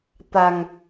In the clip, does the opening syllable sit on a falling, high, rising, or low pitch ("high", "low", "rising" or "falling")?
low